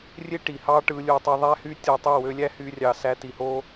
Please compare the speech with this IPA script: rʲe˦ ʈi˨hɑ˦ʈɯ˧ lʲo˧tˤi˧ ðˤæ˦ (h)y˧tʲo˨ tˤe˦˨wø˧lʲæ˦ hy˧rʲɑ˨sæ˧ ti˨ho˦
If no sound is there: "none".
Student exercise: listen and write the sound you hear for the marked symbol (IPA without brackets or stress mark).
h